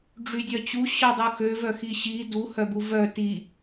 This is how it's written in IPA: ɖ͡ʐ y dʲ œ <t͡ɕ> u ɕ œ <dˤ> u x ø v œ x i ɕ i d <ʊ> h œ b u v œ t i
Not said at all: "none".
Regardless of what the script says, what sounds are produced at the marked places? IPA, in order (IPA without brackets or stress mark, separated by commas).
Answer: t͡ɕ, dˤ, u